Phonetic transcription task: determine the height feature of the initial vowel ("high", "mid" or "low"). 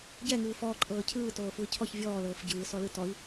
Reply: mid